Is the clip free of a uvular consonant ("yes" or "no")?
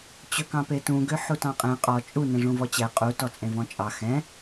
no